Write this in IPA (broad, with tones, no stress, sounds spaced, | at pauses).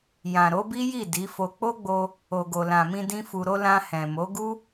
j ã˨ ɾ o˨˦ b i˦ j i˦˨ d i˨˦ f o˧ k͡p o˦ ɡ͡b o˧ | o˨ ɡ o˨ l ã˨ m ĩ˧ d ĩ˦ f u˧ ɾ o˦ l ã˧ h ɛ̃˨ m o˨˦ ɡ u˦